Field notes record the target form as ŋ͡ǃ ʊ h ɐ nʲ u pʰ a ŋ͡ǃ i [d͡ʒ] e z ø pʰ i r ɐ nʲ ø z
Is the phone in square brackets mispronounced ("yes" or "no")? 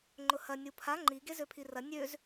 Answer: yes